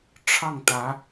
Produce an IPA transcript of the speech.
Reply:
ʈ͡ʂʰ ɑ˥˩ ŋ t̪ ä˧˥

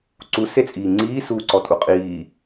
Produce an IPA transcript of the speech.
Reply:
ǀ u s e t͡sʼ iː ŋ͡ǀ iː s uː ǀ ɔ tʼ u qʼ iː

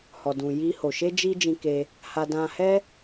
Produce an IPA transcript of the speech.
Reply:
h ɔ˨ d ũ˨ j i˧ h o˨ ʃ e˧ d͡ʒ i˧ d͡ʒ ĩ˧ k e˧ | h a˧ d ã˧ h ɛ˦

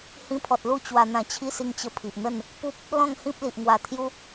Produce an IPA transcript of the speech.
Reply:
h ĩ˧ pʰ ɔ˨ t̚ l u˥˧ t͡ɕ w a˧ n̪ ã˧ t͡ɕʰ i˦ s i˧ ŋ t͡ɕ ə˧ pʰ i˨ ʔ n̪ ə˥˧ n | p u˦ p̚ | l ɔ̃˥˧ ŋ h ĩ˦ p̚ l i˨ ʔ ŋ w a˧ t̪ʰ j u˦

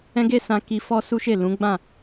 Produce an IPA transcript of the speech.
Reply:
ɛ̃˦ ɡ e˦ s ã˧ k i˧ f ɔ˦ s u˦ ʃ e˦˨ l ũ˨˦ ɡ͡b ã˦˨

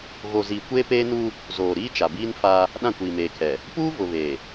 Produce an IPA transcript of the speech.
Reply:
ɣ o˨ z iː˨ kʷ eː˦ p eː˦ n u˦ | z oː˨ ɾ iː˦ t͡ʃ a˨ b iː˦ n f a˦ | ɗ ã˦˨ kʷ iː˨ m eː˨ kʰ ɛ˨ | p uː˦ v ʊ˨ β eː˨

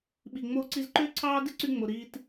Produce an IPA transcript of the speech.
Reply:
ɓ i˨ ŋ͡m oː˧ ǀ i˧ z ǃ øː˦ ǀʰ ɑː˦ d i˦ ǀ y˧ ŋ͡m o˨ ɾ iː˧ t

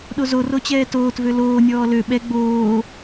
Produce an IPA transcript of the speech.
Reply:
ɗ o z o r o t͡ɕ ɛː t oː t v ø l oː nʲ ɔː l ø ɓ ɛ ɡ͡b oː

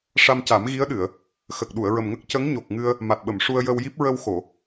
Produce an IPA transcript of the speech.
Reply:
ʂ a˧ m c a˨˩˦ m ɣ i˧˥ ə̯ ɗ ɨ˨˩˨ ə̯ | x ə˨˩ k̚ ɗ u˨˩˨ ə̯ ɹ ə˨˩ m ŋ ə˦˥ k̚ c ə˧˥ ŋ ɲ o˨˩ k̚ ŋ ɨ˧ ə̯ | m a˨˩ t̚ ɓ ə˨˩˨ m ʂ u˧ ə̯ j ə˧ w j i˦˥ p̚ ɹ ə˧ w x o˨˩˨

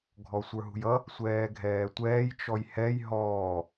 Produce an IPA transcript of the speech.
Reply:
ɡʱ ɔ sʷ ə˞ ɦ ṳ j ʌ | sʷ ɛː ɡʱ ɛː tʷ ɛː j t͡ʃ ɔ j h ɛ j ɦ ɔː

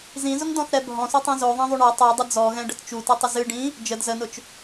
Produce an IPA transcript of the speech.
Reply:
z ĩ z ʊ ŋ d ɔ̃ θ ɾ ɛ bʱ ɔ̃ s o tˤ ɛ̃ z o ðˤ ɑ̃ ðˤ u ɳ ɔ tˤ o dˤ ə d͡z ɔ ɣ ɛ̃ ɖ ə t t͡ʃ u t ɨ tˤ ɪ z ɨ ɖ ĩ | d͡ʒ ə d z ə n ʊ t͡ʃ

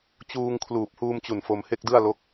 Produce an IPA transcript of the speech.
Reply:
t͡ɕ uː˧ ŋ kʰ l uː˨˩ p̚ h uː˧ m t͡ɕ u˨˩ n f o˧ m h e˥˩ k̚ d ɯ˥˩ a̯ l o˦˥ k̚

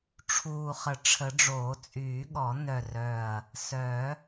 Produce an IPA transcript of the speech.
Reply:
ʈ͡ʂʰ uː˨˩ χ ə˨˩ ʈ͡ʂʰ ə˨˩˦ ɖ͡ʐ oː˨˩˦ t͡sʼ yː˨˩˦ ɠ ɔ˨˩˦ n œ˨˩ r œ˨˩ ɐ̯ | s œ˨˩˦

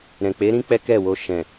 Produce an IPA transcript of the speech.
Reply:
ɾ ɛ̃˨ k͡p e˨˦ ɾ ĩ˦ k͡p ɛ˦ k ɛ˦˨ w o˧ ʃ ɛ̃˨

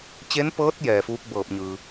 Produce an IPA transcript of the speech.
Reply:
t͡ɕ e˧˥ n p ɤː˧˥ t̚ j ɛː˩ f uː˧˥ k̚ b ɤː˧˩ p̚ ɲ ɯː˩

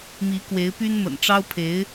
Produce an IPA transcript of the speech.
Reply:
m i˧˥ k w e˧˥ ɪ̯ p y˥ n m ə̰˨˩ n ʈ͡ʂ ɑ˥ ʊ̯ pʰ e˧˥ ɪ̯

